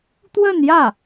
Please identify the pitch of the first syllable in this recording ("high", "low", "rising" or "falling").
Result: falling